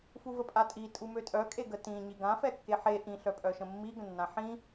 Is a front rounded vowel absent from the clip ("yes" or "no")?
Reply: no